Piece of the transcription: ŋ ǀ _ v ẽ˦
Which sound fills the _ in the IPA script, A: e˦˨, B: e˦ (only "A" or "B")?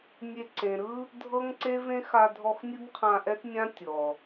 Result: B